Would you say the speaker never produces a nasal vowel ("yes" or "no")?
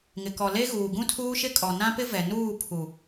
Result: no